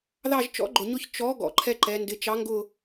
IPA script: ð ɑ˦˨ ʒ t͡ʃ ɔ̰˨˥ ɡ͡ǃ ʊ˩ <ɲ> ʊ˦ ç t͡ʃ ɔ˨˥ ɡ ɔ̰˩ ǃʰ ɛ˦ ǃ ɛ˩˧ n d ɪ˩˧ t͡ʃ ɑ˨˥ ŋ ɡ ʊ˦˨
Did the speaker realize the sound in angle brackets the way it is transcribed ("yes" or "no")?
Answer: yes